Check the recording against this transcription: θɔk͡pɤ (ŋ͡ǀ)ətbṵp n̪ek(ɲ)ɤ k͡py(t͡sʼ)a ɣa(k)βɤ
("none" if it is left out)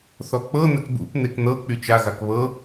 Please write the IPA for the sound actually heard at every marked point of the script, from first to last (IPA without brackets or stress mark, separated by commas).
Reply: n̪, n̪, t͡ʃ, k